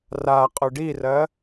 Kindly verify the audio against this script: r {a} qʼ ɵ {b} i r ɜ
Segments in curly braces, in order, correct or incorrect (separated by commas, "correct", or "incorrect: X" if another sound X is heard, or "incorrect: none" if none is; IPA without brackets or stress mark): correct, incorrect: ɖ